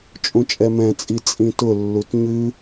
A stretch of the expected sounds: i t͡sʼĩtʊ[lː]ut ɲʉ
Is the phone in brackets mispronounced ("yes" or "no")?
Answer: no